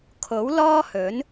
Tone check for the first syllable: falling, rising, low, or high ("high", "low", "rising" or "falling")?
rising